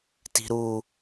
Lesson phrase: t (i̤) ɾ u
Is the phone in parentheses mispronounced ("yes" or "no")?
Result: no